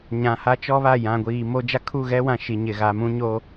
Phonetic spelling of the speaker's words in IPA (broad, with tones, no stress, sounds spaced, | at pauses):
ɲ ã˨ h a˦ t͡ʃ ɔ˦ β a˦˨ j ã˨ ɡʷ iː˨ m o˦ d͡ʒ a˦ kʰ u˦˨ ɣ ɛ˦ w ã˨ ʃ i˨ ɲ ɪ˨ ɣ a˨˦ m ũ˦ ɲ o˦